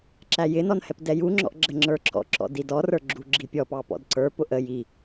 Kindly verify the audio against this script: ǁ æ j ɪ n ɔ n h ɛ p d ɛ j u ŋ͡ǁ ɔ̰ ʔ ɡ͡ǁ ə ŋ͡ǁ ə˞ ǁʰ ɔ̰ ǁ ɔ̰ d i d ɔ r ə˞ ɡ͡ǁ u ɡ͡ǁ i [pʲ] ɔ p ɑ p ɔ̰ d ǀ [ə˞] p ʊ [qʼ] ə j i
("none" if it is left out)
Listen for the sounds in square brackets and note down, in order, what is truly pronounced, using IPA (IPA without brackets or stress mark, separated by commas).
pʲ, ə˞, ʔ